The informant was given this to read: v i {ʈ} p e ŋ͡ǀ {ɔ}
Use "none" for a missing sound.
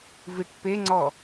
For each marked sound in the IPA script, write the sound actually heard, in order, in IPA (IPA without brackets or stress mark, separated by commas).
ʈ, ɔ